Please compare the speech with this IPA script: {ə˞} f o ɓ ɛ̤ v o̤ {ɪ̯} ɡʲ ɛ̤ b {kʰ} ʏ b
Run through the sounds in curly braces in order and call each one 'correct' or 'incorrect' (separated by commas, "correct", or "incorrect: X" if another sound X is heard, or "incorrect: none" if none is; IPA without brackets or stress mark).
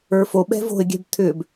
correct, correct, incorrect: t̪ʰ